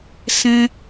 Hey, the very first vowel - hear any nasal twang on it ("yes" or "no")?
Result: yes